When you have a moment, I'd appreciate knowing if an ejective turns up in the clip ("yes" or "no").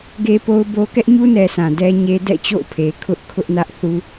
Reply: no